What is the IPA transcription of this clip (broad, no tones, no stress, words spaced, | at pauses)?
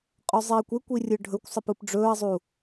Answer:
qʼɵzˤiːkʷekʷi rʲɯɖʱɵkʷsˤəp ɯpɖ͡ʐɵːɐ̯zˤu